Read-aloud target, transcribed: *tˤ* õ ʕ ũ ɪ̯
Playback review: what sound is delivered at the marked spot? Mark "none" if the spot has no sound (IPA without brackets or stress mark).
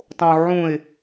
tˤ